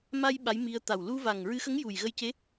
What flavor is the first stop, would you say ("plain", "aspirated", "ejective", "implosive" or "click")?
implosive